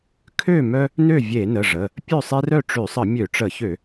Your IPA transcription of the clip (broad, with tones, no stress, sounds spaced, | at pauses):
kʰ ø˥˨ m œ˦ | n ø˥˨ vʲ e˧˩˧ n ə˩˧˩ ʐ ə˩˧˩ | pʲ œ˥˨ sˤ e˦ r œ˥˨ ʈ͡ʂ ø˧˩˧ sˤ ə˧˩˧ mʲ ø˧˩˧ ʈ͡ʂ ə˧˩˧ ç ø˧˩˧